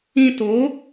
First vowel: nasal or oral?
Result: nasal